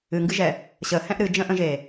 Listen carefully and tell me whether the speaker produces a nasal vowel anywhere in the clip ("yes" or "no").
yes